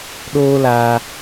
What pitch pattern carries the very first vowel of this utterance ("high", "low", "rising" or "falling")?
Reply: high